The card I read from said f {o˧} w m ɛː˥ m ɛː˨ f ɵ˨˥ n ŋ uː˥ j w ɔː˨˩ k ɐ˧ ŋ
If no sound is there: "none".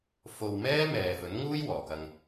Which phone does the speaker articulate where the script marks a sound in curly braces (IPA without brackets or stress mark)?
o˧